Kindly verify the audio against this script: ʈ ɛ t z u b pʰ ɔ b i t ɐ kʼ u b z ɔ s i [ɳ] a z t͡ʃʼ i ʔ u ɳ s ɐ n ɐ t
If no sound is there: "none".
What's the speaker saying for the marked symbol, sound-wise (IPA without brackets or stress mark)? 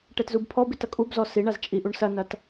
ɳ